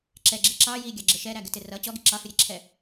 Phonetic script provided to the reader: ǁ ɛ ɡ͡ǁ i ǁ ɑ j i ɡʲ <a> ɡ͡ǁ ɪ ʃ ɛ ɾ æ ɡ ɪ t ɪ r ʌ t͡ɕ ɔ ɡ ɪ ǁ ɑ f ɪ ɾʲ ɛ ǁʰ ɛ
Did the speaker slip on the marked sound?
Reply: yes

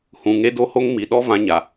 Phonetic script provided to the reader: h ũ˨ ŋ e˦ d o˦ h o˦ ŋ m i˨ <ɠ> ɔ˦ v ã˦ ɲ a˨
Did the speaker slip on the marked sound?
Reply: yes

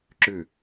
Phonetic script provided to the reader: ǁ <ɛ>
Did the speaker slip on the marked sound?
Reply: yes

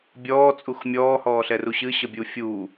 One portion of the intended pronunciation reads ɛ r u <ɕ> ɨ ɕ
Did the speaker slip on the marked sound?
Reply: no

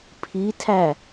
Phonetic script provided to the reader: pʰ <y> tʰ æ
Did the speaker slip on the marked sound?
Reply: yes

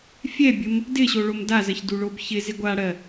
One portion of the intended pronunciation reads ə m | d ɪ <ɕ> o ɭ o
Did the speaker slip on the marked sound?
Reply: no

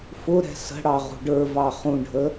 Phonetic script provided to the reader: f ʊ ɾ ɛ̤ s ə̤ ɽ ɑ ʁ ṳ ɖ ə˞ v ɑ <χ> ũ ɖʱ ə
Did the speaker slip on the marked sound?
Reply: no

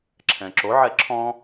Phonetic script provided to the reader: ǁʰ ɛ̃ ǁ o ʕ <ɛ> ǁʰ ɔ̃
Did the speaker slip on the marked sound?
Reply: no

